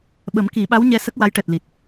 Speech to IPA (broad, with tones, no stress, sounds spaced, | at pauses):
ɓ ə˨˩˦ m k i˨˩˦ ɓ a˧˥ w ɲ ɛ˧ s ə˦˥ k̚ w a˧˥ j ʈ ɛ˨˩ t̚ l i˨˩ t̚